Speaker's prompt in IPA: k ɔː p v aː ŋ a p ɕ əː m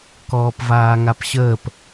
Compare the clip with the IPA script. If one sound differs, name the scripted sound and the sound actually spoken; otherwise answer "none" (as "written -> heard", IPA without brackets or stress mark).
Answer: m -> p